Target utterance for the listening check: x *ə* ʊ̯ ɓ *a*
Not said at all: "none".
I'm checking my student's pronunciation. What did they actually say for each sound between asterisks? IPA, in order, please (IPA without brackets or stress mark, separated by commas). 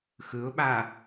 ɯ, a